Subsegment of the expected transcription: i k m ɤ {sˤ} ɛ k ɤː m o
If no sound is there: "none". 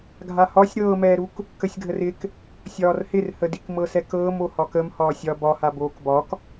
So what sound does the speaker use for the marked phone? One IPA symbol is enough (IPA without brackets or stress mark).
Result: s